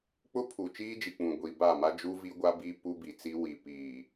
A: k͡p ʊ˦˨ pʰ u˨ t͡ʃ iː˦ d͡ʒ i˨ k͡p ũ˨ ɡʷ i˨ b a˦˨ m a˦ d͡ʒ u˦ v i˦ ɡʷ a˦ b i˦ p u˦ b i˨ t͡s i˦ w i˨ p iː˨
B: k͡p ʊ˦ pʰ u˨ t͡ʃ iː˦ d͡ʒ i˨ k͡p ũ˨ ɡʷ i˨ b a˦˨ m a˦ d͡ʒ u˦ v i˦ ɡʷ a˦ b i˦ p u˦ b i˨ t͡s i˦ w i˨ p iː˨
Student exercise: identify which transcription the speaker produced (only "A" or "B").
B